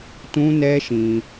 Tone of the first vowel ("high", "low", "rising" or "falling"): high